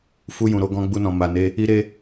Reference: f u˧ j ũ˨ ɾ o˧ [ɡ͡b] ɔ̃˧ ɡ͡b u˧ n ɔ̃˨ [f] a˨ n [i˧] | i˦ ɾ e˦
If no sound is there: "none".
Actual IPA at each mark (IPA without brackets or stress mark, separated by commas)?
ɡ, m, e˧